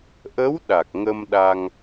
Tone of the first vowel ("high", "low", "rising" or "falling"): rising